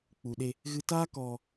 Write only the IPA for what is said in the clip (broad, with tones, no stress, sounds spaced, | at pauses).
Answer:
k͡p u˨ ɗ e˧ | ɣ ɨ˧ t aː˦ k ɔ˧